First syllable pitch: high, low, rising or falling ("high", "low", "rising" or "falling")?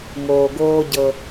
low